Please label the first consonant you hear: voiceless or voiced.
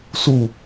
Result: voiceless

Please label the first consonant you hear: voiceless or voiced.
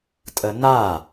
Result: voiceless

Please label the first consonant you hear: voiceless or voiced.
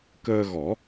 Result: voiceless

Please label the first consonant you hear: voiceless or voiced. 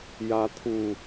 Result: voiced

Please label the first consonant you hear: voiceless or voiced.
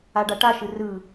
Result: voiced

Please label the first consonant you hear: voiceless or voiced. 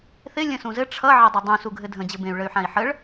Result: voiceless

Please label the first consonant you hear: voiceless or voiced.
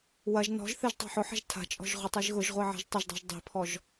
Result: voiced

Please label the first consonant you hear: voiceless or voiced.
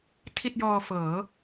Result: voiceless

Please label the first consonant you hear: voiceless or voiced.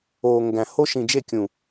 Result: voiced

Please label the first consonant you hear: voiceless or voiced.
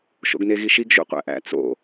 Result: voiceless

